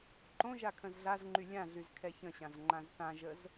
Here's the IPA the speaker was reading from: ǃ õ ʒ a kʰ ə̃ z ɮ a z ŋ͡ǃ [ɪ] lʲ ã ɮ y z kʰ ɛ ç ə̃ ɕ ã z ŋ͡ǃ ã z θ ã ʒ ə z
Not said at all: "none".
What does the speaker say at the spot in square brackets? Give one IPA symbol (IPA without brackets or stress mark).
y